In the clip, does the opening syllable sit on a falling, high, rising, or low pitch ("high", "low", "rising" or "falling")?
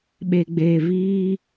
low